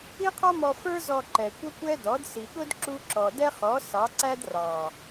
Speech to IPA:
i˦ qʰ ɔ˦ m ɔ˧ f ə˞˦ z ɔ˧ ǃ ɛ˨ kʷ ə˦ kʷ ɛ˦ d ɔ˨˦ d s i˨ ɠ ʊ˦ d ǁ u˦ ǁ ɔ˨ d ɛ˦ χ ɔ˨˦ s ɑ˨˦ ǀ æ˦ d r ɑ˨

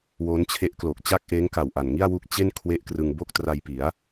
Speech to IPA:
w o˦˥ n t͡ɕʰ e˦˥ ʔ k l o˨˩ k̚ t͡ɕ a˥˩ k̚ ʔ eː˦˥ ŋ k a˨˩ w ʔ a˨˩ n ŋ i˥˩ a̯ w u˦˥ k̚ t͡ɕ e˥˩ n kʰ w e˥˩ ʔ k r ɯ˧ ŋ b o˥˩ k̚ t r a˧ j p i˩˦ a̯

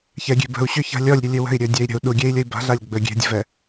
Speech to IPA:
ç ɛ ɡʲ e̤ b ə̤ u̯ ɕ ʏ ç a̤ lʲ ɔ lʲ ɾʲ u lʲ ʏ w ə̤ i̯ ɾʲ ɵ dʲ ɛ i̯ ɾʲ ə̤ u̯ ɗ u ɡʲ e i̯ lʲ ə i̯ b a̤ ɮ a lʲ ɡ͡b ɵ ɡʲ e̤ dʲ ə̤ v ɛ

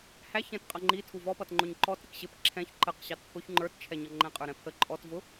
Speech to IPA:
h æ ç ɛ̃ t qʼ ʌ ŋ͡ǃ i tʰ u v ɔ p ʌ t ŋ͡ǃ ʊ ɲ ǃ ɔ t ɾ ɪ k ɕ ɪ p ǁʰ ɛ̃ ç ǃ ə q ɕ ɑ t pʰ ʊ ç ŋ͡ǃ ə˞ t t͡ʃʰ ɛ ɲ ʌ ŋ͡ǃ ɛ̃ qʼ ə˞ ɾ ɛ̃ pʰ ə ǃʼ ɔ t v ʊ

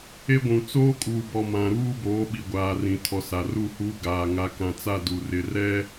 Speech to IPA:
e˦ ɡʷ ũ˨ t͡s oː˦ kʼ uː˨ b ɔ˨ m ã˨ ɾ uː˦ b oː˨˦ ɓ i˨ ɡʷ aː˨ r ĩ˨ tʰ ɔ˨ s a˨ r u˦˨ h u˦ ɡ aː˨ ŋ a˨˦ k ã˨ t͡s a˦˨ d u˨ r ɪ˨ r ɛ˦

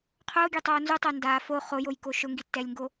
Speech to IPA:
qʰ ʊː ɡʲ e tˤ oː n z u tˤ ʊː n d aː f o χ o j o j k o ʃ ʊ ŋ ɡ i tː ɛ lʲ ŋ ɡ o

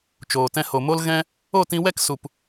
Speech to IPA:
t͡ʃ oː˨ t ɛ̃˧ h o˨ m o˦ l ɣ ɛ̃˦ | o˦˨ t ĩ˧ w ɛ˦ k s u˨ p

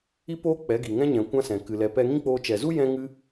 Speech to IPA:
i˦ p oː˦ k͡p ɛ˨˦ ɡ i˨ ŋ ɛ̃˦ ɲ ɛ̃˨ kʷ ã˦ s ɛ̃˨ k ɨ˨ l ɛ˨˦ p ɛ˧ ŋ ĩ˦ k͡p oː˧ t͡ʃ ɛ˨ z u˦ j ɛ̃˦ ŋ ɨ˦

